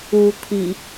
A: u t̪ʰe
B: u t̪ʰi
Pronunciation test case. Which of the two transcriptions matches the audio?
B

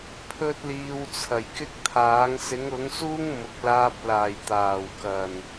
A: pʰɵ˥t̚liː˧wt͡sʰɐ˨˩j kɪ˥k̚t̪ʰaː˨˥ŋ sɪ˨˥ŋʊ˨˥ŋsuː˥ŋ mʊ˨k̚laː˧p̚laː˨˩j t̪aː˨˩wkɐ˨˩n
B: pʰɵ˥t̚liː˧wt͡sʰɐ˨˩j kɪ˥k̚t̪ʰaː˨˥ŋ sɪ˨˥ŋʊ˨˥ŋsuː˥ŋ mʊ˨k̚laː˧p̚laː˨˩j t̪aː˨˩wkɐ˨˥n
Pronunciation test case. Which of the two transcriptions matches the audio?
A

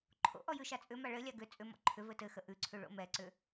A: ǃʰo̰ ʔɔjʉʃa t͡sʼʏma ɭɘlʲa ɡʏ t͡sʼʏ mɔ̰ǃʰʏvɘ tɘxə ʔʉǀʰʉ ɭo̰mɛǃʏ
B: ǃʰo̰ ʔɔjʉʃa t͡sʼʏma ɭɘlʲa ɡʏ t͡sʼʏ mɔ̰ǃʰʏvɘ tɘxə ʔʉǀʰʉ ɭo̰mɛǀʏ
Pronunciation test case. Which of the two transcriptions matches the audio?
B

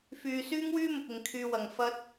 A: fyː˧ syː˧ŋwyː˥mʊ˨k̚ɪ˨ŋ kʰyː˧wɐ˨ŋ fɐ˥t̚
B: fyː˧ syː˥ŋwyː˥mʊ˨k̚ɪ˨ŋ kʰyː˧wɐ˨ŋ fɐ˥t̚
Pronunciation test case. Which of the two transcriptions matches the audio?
B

